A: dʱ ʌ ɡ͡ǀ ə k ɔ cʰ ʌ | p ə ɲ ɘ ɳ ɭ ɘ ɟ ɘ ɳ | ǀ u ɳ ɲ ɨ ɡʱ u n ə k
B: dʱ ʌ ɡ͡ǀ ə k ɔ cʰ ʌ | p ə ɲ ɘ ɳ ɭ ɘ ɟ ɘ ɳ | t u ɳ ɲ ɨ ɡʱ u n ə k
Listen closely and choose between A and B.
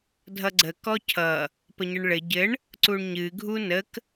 A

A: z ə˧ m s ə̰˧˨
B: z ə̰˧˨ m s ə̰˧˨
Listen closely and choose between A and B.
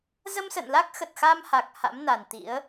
A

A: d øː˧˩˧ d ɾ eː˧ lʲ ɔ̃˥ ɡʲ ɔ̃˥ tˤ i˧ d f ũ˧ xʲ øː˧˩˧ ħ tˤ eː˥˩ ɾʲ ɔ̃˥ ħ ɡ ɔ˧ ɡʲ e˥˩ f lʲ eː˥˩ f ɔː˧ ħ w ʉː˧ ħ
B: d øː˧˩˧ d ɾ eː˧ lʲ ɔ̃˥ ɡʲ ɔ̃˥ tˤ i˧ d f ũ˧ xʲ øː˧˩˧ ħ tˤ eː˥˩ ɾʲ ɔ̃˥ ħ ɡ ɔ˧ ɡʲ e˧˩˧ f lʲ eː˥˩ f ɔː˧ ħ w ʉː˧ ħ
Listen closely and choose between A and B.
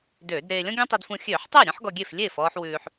A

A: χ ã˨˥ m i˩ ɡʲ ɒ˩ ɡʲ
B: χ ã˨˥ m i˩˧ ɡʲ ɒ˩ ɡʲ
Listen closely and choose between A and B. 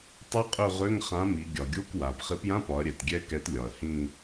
B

